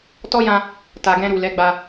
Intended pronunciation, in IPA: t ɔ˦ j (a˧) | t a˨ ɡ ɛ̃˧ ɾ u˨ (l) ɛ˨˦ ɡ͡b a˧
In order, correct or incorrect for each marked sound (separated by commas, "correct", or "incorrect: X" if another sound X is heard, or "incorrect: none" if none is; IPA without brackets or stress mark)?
incorrect: ã˧, correct